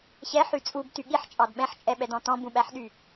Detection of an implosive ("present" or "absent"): present